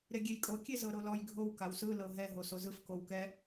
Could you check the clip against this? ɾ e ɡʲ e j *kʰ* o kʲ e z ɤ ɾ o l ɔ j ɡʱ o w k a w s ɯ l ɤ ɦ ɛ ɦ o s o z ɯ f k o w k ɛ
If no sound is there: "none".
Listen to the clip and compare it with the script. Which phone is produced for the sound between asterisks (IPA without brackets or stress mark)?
kʼ